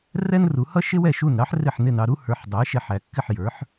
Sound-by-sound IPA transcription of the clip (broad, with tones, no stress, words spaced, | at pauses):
rɛ˥nru˩˥ hʌ˥ʃɪ˥wɛ˥˩ ʃu˥˩n ɾɑ˥ħrɪ˥˩ħ nɪ˥˩nɑ˧ɾu˥ hə˞˩˥ħdˤɛ˩˥ʃɛ˧ħ æ˩˥ kːɪ˥˩ħjə˞˩˥ħ